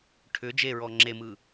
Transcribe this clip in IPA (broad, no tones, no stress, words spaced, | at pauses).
ʈʰʏ d͡ʒeɹɔ ŋ͡ǁemɯ